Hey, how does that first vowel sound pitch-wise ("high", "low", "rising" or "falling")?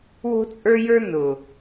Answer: high